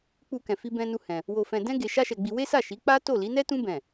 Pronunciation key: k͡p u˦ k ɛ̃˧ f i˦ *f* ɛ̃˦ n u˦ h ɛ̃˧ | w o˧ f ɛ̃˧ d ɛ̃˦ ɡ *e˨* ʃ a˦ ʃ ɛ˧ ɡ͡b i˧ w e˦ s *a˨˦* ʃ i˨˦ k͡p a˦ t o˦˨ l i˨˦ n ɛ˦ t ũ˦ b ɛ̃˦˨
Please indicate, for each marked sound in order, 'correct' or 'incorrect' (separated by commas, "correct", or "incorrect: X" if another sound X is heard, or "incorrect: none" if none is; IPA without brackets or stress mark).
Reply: incorrect: b, incorrect: e˧, incorrect: a˦˨